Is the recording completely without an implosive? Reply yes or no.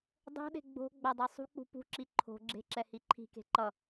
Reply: no